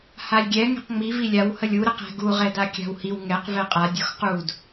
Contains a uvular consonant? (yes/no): yes